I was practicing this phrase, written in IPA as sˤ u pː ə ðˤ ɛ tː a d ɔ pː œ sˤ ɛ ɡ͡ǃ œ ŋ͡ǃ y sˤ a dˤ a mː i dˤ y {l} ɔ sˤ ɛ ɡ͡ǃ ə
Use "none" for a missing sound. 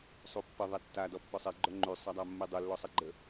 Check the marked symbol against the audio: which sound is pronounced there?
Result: lː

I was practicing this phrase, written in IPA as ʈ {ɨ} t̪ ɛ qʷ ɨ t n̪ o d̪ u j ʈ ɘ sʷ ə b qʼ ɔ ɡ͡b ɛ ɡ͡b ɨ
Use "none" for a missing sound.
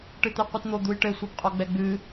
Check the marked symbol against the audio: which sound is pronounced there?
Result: ɨ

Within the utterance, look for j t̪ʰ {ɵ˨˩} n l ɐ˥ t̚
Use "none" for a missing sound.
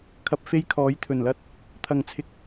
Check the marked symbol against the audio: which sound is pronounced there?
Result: ɵ˨˩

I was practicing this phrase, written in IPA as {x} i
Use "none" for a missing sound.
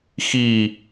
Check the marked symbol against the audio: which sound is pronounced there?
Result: x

